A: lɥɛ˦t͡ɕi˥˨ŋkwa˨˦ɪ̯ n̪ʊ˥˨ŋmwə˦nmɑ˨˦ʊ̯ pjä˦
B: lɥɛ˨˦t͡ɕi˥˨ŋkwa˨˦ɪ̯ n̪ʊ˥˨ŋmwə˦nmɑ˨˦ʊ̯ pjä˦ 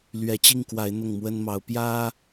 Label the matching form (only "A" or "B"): B